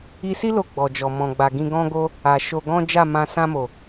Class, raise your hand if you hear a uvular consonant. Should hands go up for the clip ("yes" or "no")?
no